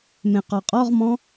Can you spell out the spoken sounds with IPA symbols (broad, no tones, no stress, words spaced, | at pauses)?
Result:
mẽqɔqʼɔʁmɔ̃